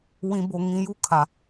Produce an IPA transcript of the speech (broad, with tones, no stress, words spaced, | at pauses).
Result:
wĩ˨bo˨ŋĩ˨ ju˦˨kʰa˨